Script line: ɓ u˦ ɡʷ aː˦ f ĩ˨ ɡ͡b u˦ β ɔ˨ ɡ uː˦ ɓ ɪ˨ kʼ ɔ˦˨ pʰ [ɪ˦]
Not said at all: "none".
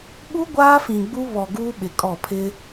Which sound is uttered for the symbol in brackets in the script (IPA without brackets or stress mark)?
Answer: ɪ˦